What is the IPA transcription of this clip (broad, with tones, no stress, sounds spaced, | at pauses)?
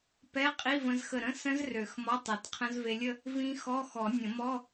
p ɛ˧˥˧ qʼ i˧˥˧ v ə̃˧ z x ə˧˩ ɾ ə̃˧˥˧ s ə̃˦˥ z r ø˨˩˦ x m ɔ˧˥˧ tˤ ɛ˨˩˦ t qʰ ə̃˦˥ z v e˧ lʲ ə˥˧ | v ĩ˦˥ x ɔ˧˥˧ x ɔ˨˩˦ nʲ ə̃˨˩˦ m ɔ˧˥˧